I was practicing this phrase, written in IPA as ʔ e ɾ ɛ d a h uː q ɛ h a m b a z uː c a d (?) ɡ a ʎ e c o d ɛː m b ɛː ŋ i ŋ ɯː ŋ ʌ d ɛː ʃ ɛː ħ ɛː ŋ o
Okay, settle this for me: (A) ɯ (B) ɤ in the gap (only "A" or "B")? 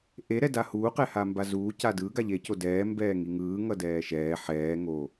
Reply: A